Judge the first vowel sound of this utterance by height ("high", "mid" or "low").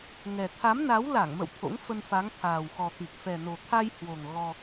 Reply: mid